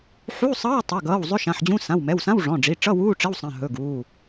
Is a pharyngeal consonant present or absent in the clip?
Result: present